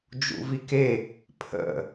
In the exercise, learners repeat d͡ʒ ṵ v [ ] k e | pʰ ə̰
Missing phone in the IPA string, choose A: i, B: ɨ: A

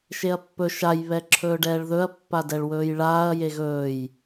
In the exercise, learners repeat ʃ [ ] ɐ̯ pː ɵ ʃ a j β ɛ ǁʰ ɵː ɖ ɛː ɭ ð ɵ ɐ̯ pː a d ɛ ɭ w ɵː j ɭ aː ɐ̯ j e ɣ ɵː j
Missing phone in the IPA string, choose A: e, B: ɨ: A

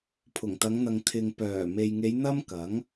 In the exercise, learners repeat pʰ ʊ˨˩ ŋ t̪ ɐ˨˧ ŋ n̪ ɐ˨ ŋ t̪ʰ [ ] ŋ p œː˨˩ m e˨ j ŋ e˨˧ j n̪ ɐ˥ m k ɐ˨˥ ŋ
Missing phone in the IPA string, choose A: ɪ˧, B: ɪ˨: B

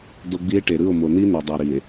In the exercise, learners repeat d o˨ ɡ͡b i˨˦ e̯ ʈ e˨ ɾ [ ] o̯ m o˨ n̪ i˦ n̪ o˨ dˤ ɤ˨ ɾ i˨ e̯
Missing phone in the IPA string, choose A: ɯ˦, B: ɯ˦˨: B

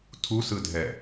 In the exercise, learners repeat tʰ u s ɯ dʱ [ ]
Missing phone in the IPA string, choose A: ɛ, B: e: A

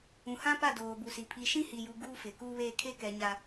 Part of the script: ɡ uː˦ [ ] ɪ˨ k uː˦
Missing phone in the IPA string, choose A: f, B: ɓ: A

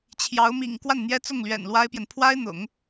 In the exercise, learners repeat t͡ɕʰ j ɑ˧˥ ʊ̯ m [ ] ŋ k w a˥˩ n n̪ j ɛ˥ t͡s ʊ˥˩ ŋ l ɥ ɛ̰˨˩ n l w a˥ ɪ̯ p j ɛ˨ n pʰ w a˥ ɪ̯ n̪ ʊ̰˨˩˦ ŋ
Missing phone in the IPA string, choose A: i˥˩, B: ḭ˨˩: B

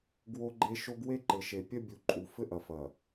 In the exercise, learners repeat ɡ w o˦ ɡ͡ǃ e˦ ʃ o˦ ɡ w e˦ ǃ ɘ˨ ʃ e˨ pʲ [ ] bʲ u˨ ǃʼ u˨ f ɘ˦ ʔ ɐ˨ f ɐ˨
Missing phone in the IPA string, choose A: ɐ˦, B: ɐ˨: A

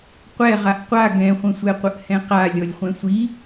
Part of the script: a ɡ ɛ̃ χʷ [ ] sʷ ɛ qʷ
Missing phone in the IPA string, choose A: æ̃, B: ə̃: B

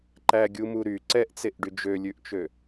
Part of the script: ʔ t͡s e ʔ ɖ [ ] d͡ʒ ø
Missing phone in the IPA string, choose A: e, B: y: B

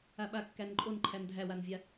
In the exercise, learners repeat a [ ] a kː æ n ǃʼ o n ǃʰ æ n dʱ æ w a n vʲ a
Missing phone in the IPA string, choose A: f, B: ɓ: B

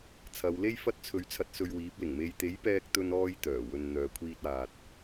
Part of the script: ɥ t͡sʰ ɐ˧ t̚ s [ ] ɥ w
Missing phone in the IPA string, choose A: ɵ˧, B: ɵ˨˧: A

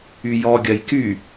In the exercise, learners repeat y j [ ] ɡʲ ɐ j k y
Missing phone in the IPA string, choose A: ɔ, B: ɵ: A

